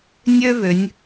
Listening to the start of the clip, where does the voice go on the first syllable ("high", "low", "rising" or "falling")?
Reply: high